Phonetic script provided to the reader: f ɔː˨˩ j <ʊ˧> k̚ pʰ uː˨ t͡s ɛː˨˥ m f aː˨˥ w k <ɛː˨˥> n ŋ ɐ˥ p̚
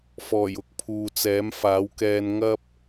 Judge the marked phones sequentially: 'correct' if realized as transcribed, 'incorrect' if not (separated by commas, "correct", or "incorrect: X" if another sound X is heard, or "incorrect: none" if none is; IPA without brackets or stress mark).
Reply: incorrect: ʊ˨˥, incorrect: ɛː˧